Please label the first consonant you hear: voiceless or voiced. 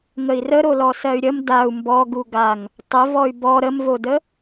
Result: voiced